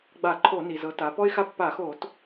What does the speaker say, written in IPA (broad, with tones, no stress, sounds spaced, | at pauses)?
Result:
ɡ͡b a˧˩˧ ǃʰ o˧˩˧ n i˩ z ɤ˩˧ t a˩˧ p ɔ˥ ɪ̯ x a˥ pː a˧˩˧ x o˧˩˧ t